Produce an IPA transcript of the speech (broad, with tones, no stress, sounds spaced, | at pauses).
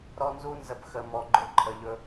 ɾ ɔ˦ n z u˦ n z ə˧ p x ə˧ m ɔ˧ ɡ͡ǃ ʊ˦ ǃʰ ə˧ ʎ ɵ˦